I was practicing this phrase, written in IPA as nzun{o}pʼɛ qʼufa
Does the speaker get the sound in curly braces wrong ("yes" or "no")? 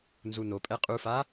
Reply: no